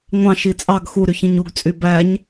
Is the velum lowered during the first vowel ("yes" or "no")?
yes